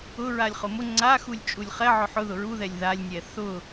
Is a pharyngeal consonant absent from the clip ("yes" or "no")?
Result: no